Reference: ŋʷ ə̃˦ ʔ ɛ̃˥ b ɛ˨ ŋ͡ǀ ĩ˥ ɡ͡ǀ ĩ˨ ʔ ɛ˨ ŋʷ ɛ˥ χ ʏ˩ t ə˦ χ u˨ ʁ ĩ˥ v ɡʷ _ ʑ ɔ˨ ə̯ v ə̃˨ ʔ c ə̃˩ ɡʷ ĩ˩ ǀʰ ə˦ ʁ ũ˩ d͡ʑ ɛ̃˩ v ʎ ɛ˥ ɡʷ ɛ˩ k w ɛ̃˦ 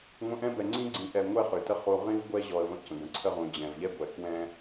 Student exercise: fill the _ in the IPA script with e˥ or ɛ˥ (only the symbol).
ɛ˥